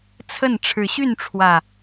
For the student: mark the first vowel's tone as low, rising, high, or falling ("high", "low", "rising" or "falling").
falling